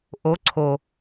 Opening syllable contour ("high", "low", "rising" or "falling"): rising